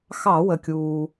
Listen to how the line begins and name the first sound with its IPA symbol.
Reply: x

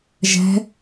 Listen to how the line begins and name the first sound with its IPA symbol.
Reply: ʒ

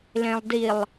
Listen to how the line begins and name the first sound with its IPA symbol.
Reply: l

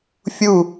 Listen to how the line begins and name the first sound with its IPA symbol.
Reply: fʲ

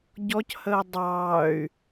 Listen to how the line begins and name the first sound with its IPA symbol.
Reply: ɟ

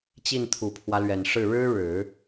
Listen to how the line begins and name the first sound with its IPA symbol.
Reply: t͡ɕ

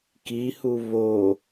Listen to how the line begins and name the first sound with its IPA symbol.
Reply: k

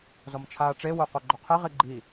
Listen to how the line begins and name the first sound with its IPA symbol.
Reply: z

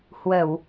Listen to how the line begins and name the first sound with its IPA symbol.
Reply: h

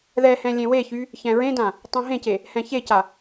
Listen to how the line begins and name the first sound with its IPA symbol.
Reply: ð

